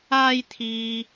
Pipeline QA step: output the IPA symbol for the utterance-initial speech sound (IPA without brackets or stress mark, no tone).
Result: aː